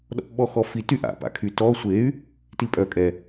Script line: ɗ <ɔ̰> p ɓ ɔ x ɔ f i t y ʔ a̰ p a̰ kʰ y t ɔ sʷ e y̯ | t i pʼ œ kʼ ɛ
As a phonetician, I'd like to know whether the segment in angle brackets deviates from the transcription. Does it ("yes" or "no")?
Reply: no